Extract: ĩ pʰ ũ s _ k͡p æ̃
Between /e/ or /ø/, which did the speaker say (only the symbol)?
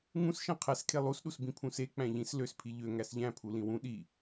e